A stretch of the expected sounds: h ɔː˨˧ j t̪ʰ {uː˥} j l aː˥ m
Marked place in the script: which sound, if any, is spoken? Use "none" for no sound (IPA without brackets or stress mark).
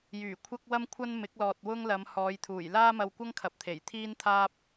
uː˨˩